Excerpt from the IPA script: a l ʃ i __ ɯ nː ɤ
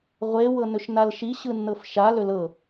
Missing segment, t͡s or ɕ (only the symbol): ɕ